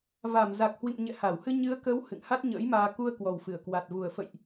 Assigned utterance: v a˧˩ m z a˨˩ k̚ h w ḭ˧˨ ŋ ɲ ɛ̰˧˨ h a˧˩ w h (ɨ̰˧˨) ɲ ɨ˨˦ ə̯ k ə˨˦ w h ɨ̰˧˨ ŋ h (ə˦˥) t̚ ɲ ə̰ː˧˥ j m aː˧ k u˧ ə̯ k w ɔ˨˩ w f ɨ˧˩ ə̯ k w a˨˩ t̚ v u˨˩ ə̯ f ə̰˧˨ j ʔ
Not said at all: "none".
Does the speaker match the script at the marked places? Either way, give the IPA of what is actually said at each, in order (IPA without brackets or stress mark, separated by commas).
ɨ˧, a˦˥